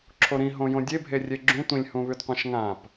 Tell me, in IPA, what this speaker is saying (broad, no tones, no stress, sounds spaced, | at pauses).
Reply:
ǁʰ o ɾ ĩ ɦ õ j õ dʲ e bʱ e rʲ e ɡ͡ǁ ũ tʷ ĩ lʲ h ũ β ʉ d qʷ ã ʃ ŋ ã p